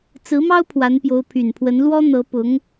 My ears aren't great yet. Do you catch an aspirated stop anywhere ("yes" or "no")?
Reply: yes